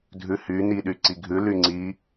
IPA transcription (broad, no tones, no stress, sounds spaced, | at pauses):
dʱ ʉ h y n i ɗ y ǀ i ɡʱ ʉ l y ŋ͡ǀ i